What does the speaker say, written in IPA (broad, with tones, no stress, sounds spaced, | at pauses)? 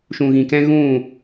ʃ ũ˨ ɣ ĩ˨ k ɛ̃˧ ɣ ũ˦˨